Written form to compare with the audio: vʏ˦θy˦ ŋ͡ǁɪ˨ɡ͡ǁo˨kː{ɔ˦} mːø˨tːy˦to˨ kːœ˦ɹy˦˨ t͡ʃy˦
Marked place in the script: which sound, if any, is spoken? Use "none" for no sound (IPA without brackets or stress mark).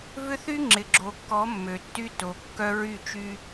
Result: ɔ˨˦